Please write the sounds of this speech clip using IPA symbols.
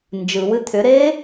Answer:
n d͡ʒ ɯ w ɨ t̪ʰ ʏ ɾ eː

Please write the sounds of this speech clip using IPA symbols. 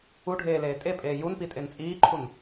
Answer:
u ɖʱ eː l eː tʼ e pʼ eː j u n p i tʼ e n t͡sʼ iː ǃʰ u n

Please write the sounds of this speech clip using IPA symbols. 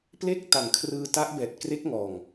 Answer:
p l e˥˩ k̚ t a˨˩ ŋ kʰ r ɯː˧ t a˦˥ ʔ b ɛː˨˩ t̚ k r e˦˥ k̚ ŋ ɔː˨˩ ŋ

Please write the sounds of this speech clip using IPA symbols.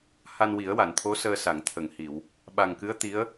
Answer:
h a˧ n w i˨˩˦ ə̯ w a˨˩˨ n t̪ʰ o˧˥ s əː˧ s a˨˩˨ ŋ t̪ʰ ə˨˩˨ ŋ h i˨˩˨ w | ɓ a˨˩ ŋ k ɨ˧˥ ə̯ t̪ i˧˥ ə̯

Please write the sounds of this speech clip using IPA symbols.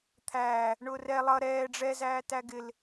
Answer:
t̪ʰ æː | ɳ ʊː r ɛ lˠ ʌ ɾ ɛː ɖ͡ʐ ɛ z æː t æ ɡ ɪ l

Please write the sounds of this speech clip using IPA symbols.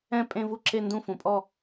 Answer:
ɛ̃˥˧ pʼ ẽ˥˧ v u˥˧ ǁ e˥˧ n d ũ˥˧ f ũ˩˧ pʼ ɔ˥˧

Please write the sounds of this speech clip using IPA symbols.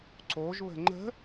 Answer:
ǀ o ʒ β ə̤ ŋ͡ǃ ə̤

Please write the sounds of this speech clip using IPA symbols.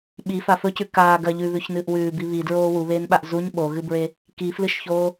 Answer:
ɓ i f a f ɵ c ʉ k aː ɡ ɐ ʎ ʉ β ʉ ç n ɨː ʔ w ʉː b i β i d ɹ oː w u β eː n ɓ a ʔ z u ɲ ɓ o ɣ ɨ b ɹ e | k i f l ɨ ʃ ç oː

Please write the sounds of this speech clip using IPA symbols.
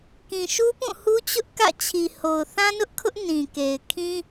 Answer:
k ĩ˨ ʃ u˦ p ũ˦˨ h u˦ t͡ɕ ʊ˦ ʔ k ä̰˦˨ t͡ɕʰ i˨ h o˨ ʊ̯ θ ã˦ n ʊ˦ ʔ kʰ ʊ˦ ʔ n ĩ˨ k e˨ ɪ̯ kʰ ĩ˦

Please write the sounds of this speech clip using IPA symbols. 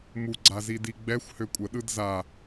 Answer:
m u ɡ͡ǀ a z i d i ɡ͡b ɛ xʷ h ø kʷʼ ə ɗ ɯ d z a

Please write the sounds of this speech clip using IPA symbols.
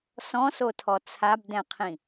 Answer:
s ɔ̃ s o tʰ ɔ t͡sʰ a b d ɛ̃ qʰ ĩ

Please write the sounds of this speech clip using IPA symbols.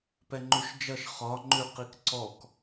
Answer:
p ɛ ŋ͡ǃ ʉ ʃ d͡ʒ ʌ ʃ χ ɒ ŋ͡ǃ ʉ q i k ǀ ɔ k

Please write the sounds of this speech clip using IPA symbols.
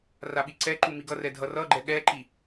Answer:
r a ɓ i ǀ ɛ ǃ u m i ɡ ʌ r ɛ dʱ ʌ r ʌ ɡ͡ǃ ɛ ɠ ɛ ǃ i

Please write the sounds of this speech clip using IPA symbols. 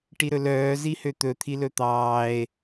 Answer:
ʈ i ɾ ɵ l œː z i h ø t̪ ɵ t̪ʰ i l ɵ t̪ ɑː e̯

